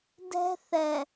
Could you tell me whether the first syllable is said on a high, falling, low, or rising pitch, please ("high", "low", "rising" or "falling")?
high